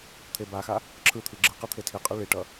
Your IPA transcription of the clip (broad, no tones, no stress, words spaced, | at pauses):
t̪ʰebaxa | ǁʰɯt̪ʰi ɡ͡ǁɯqɯ t̪ʰetʰiqʼɯ ɭiʈʌ